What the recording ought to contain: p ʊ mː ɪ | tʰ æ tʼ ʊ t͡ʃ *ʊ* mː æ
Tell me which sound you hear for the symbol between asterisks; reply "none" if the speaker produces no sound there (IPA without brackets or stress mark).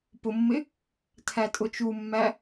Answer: u